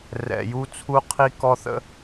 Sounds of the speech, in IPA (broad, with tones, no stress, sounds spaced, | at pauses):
r ɛ̰˨ j u˦ t͡sʰ u˦ qʰ i˦ k ɔ˦ θ ə̰˦